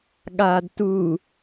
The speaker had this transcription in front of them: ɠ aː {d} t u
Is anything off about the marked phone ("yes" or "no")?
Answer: no